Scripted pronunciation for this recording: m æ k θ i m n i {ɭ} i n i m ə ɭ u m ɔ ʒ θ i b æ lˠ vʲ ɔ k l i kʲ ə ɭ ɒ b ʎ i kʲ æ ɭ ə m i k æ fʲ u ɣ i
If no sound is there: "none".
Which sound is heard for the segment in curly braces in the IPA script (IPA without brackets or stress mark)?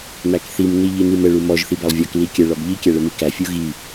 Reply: ʎ